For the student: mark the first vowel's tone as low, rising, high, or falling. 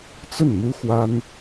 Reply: falling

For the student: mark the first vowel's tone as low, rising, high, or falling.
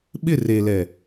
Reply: falling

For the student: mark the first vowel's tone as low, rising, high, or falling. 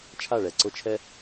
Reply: falling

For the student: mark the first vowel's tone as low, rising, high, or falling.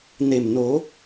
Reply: low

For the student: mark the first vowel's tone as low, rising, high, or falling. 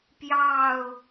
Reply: falling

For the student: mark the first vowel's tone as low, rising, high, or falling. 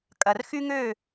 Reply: low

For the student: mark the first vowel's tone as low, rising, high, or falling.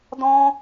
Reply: high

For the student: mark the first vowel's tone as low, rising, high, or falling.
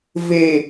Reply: low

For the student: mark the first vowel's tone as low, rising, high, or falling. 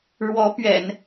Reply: rising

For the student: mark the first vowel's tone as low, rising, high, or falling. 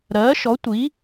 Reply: rising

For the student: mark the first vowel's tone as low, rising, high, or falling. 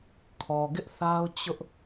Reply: low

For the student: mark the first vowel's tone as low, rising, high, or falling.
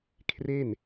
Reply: falling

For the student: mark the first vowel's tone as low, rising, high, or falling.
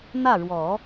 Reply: falling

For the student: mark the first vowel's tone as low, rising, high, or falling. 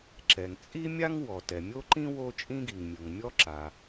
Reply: low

